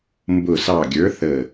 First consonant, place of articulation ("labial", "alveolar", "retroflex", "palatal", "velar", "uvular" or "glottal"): labial